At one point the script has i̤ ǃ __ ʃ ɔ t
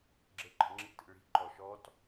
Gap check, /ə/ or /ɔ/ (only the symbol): ɔ